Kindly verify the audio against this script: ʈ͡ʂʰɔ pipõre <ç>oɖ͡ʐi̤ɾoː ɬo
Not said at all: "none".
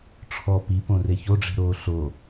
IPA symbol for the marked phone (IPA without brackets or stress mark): ç